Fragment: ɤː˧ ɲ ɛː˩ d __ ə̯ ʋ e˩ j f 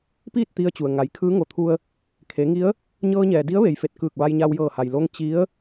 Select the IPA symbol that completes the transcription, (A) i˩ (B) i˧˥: B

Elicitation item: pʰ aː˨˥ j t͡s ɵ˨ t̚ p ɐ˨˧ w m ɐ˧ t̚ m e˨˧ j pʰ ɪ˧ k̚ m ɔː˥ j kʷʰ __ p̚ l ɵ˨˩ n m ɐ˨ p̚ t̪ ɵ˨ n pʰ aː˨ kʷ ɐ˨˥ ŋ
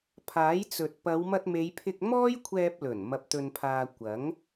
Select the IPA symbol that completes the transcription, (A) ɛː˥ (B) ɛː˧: B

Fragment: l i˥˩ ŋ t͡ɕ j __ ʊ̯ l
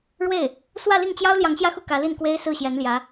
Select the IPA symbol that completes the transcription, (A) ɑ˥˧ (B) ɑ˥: B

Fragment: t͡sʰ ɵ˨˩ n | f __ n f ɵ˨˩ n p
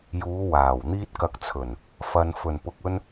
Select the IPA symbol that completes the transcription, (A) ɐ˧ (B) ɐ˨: B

